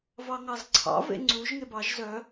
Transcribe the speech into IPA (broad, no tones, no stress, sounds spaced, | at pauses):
v ɑ ŋ ɑ z ǀʰ ɑ̰ v ḛ ŋ͡ǀ u ʒ ŋ e b ɑ ʒ z œ